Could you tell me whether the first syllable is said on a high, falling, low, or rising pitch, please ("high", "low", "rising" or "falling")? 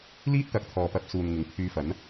high